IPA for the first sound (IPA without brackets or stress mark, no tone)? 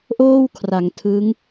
ʔ